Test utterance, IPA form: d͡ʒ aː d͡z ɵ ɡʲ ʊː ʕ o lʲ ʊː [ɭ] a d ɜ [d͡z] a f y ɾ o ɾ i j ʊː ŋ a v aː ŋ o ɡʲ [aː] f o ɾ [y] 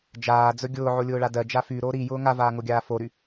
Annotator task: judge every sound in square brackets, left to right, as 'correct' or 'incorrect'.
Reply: correct, incorrect, correct, correct

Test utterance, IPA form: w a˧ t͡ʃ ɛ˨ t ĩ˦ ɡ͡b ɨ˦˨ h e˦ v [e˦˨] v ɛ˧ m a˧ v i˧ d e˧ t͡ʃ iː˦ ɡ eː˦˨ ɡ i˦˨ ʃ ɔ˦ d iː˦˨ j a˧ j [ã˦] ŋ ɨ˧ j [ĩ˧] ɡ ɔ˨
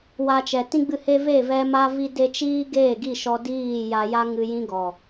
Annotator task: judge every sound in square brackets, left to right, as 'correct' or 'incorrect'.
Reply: correct, incorrect, incorrect

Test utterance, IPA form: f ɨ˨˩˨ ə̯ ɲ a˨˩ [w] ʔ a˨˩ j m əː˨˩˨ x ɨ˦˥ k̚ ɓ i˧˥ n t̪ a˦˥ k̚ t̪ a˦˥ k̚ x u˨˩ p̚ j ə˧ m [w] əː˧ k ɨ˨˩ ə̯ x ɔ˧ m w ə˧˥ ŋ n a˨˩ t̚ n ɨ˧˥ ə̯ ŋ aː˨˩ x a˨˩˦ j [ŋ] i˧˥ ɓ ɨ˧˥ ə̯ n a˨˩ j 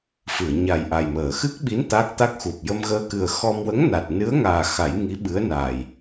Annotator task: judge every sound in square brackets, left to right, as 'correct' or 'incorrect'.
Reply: incorrect, incorrect, correct

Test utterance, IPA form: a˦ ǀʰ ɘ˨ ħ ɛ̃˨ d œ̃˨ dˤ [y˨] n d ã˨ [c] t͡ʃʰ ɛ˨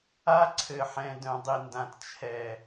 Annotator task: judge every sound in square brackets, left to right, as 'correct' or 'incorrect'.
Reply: incorrect, incorrect

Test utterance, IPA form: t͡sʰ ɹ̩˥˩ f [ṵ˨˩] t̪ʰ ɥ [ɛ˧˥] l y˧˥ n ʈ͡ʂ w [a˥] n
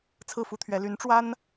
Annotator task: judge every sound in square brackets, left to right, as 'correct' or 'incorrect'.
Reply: incorrect, correct, correct

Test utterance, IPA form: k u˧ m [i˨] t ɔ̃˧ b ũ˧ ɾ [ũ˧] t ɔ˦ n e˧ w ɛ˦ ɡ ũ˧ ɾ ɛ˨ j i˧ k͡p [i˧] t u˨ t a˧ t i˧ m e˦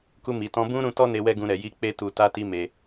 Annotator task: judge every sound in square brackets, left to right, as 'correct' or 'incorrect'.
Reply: correct, correct, incorrect

